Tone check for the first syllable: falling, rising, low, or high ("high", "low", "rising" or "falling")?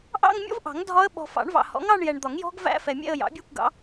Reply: falling